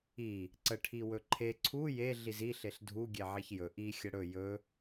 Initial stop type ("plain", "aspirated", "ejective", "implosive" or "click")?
click